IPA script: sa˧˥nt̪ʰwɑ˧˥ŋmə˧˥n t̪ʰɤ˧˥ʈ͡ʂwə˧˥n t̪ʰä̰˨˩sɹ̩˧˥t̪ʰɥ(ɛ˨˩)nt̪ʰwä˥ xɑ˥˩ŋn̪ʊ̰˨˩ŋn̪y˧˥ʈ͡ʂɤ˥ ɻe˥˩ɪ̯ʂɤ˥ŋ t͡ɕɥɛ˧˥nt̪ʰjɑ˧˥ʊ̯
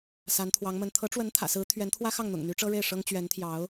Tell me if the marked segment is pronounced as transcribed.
no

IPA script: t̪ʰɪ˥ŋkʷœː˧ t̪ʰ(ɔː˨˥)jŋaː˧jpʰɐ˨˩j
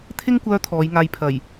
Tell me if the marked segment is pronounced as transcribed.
no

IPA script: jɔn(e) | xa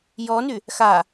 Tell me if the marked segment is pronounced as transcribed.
no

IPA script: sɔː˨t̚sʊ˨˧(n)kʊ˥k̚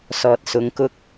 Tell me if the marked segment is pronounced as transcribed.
no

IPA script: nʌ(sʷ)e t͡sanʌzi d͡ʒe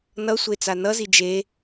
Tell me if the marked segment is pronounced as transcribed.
yes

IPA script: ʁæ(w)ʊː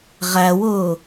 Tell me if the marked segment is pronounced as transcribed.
yes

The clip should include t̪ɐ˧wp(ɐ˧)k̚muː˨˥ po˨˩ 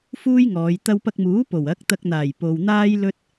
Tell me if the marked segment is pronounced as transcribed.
yes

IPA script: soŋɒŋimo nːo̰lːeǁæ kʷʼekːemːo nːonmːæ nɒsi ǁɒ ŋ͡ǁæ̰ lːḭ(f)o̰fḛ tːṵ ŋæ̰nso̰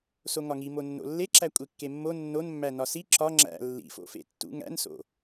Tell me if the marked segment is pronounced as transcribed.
yes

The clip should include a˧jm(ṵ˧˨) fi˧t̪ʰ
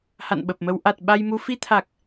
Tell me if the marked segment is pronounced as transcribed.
no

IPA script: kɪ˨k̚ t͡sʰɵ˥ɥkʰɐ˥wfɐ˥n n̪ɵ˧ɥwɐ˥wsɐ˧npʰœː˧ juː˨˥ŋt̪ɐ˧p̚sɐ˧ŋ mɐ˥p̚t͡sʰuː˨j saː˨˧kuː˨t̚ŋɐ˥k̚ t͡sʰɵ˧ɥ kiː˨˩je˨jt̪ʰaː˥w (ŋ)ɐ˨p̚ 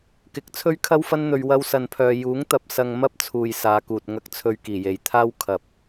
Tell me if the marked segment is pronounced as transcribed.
no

